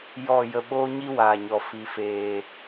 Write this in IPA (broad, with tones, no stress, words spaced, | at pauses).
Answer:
jɔ˦˨ jə˧ɓoː˦ɲi˦ waː˨ɲɔ˨ fi˨feː˨